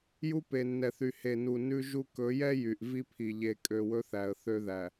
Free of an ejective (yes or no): no